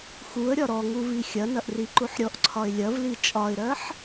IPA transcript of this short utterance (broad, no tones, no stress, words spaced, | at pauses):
xuə̯ɾʲɒ ɾɔŋuvi xʲɐnɐʔriǃuħ ɾʲɔʔǀʰɒɪ̯ lʲɐvli t͡ʃʼɒɪ̯ɾɜħ